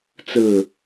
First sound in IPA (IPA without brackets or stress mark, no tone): t͡s